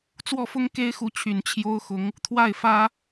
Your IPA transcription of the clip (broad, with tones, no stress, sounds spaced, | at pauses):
t͡s w ɔ˥˩ f ʊ˥ ŋ k e˥ ɪ̯ x u˧˥ t͡ɕʰ y˨˩ n t͡ɕʰ j o˥ ʊ̯ x ʊ˧˥ ŋ | t̪ʰ w a˥˩ ɪ̯ f ä˥